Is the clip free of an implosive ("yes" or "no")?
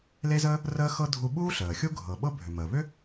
no